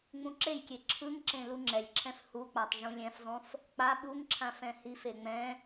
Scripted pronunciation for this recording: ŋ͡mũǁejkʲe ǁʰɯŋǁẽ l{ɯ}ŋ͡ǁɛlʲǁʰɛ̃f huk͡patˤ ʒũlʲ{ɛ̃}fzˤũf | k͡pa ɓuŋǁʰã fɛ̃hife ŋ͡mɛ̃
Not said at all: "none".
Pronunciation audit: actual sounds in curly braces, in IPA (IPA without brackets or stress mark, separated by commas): u, ɛ̃